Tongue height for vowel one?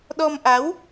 mid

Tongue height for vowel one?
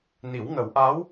high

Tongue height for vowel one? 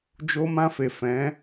mid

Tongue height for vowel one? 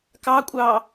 low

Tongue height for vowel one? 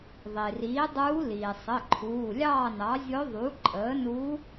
high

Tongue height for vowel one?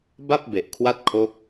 low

